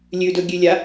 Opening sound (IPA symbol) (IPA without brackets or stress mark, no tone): lʲ